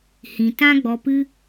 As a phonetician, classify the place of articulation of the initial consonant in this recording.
glottal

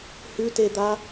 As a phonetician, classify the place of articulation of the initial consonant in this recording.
glottal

